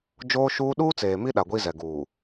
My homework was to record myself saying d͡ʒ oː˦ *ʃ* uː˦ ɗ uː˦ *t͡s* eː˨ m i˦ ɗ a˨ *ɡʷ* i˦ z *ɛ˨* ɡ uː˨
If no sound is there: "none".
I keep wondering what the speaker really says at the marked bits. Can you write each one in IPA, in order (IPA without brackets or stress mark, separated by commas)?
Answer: ʃ, t͡s, ɡʷ, ɛ˨